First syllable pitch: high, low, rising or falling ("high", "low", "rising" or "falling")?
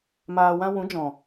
low